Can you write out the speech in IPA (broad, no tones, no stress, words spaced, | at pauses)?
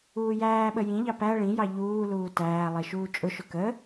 uːjæːɓə jĩʎɑ pæ ɭĩjɑ ʎuː luːtæːlˠi ʃuːt͡ʃʼʊʃʊ kə